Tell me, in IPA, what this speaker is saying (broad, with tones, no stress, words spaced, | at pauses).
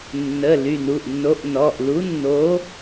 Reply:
nːə˩˧˩ ly˩˧˩nu˩˧˩ʔnːo˨˥ʔ nɔ˩˧˩ʔlu˨˥nːo˨˥